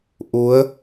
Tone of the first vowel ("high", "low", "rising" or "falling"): rising